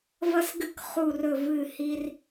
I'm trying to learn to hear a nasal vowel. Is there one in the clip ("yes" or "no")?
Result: no